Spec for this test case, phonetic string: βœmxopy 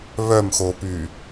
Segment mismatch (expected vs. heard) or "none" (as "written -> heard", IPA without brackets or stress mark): none